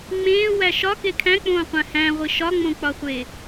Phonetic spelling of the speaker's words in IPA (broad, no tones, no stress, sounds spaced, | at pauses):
ŋ͡m ẽː w æ ʃ ɒ k e kʰ æ̃ k͡p õː qʷ æ̃ h æ̃ ʁʷ i ʃ ɒ ŋ͡m õ k͡p ɒ χʷ e